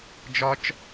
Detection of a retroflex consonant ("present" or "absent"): absent